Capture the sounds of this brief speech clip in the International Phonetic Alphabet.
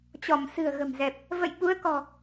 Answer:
t͡ɕɔ˧˩msɨ̤˨˩ə̯ɣə̤˨˩mzɛ˨˩p̚ | və̰˧˨jɓu˨˦ə̯kɔ̤˨˩

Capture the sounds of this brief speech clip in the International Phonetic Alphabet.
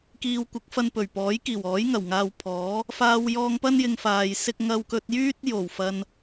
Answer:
kiː˧w kʷɪ˨˥k̚fɐ˧n pɵ˨˩ɥ pɔː˨˥jkiː˨˩wɔː˨˥j ŋɐ˨˩wŋaː˧wpʰɔː˨˥ | faː˧wjɔː˧ŋpɐ˥n jɪ˧ŋfaː˨jsɪ˥k̚ ŋɐ˧wkɵ˧t̚ jyː˥t̚jo˨˩w fɐ˧n

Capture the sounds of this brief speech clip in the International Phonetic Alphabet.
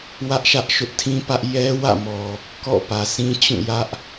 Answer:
wä˦ʔʃä˦ʔ ʃʊ˦ʔtʰĩ˦pä˦ʔ jɛ˦wä̰˦˨mɔ˨ | kɔ̰˦˨pä˨sĩ˦t͡ɕũ˦˨ jä˦ʔ

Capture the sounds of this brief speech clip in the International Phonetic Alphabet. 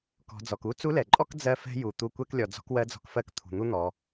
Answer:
kɔ̤˩˧d͡zɔ˩k u˥ t͡su˧˥lɛ˩ǃʼɔ˥k d͡zɜ˧fɛ̤˧ ju˩ t̪u˧kʷɛ˥klʲɔ˩ d͡zɔ̤˧˥kwɜ˧˥d͡zɔ̤˧kfɜ˧˥k t̪ʰṳ˩n̪u˥n̪ɔ˩˧

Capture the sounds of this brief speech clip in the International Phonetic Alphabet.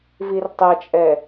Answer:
virtˤɛt͡ʃʼɛ

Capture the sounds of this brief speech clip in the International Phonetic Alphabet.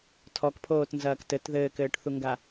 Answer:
tʰɔkpʰoːtnzɐːk tɘt ðɘːkɘːʈθuŋɡa

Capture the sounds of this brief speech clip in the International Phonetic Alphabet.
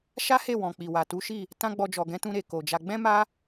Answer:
ʃa˦he˦˨wɔ̃˨k͡pi˨ wa˨tu˨˦ʃi˦˨ | tã˦ ɡ͡bɔ˧d͡ʒɔ˨ ɡɛ̃˨˦tũ˧ɾe˨ ko˨d͡ʒa˧ ɡ͡bɛ̃˦ma˦

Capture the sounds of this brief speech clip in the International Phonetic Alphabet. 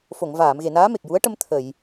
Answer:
fo˨˩˨ŋvaː˨˩˨m ɣe˨˩˨naː˧˥ me˨˩k̚ju˧˥ə̯ʈə˧m t̪ʰə˨˩˨j

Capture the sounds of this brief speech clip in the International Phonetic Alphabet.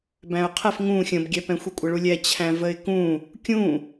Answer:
bæ̃ʊ̯qʰɛf ŋũ xʲə̃bɡʲɛpɛ̃xʷi kʷʼəɭulʲɛ t͡ɕʰæ̃vəɪ̯kũ | kʲũ

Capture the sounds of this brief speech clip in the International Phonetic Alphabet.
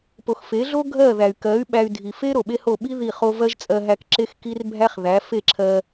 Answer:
po˨xfe˨˦ɮo˦ ɡʱɜ˦˨ðæ˨y̯kɜ˨˦y̯ɓæ˧y̯ dʱi˨fe˦ ɾo˨ɓe˦ho˦˨ ɓi˦ ði˦˨χo˦ vɜ˦ʒt͡sʼɜ˧ɦæ˧k ǁe˦xki˦r bʱæ˦χðæ˨˦ fe˦˨ǁʰɜ˧

